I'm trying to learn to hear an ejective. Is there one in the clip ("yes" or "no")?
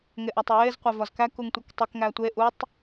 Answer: no